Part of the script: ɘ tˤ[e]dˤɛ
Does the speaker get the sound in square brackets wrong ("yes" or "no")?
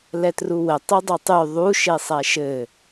yes